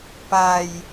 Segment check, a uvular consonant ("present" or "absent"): absent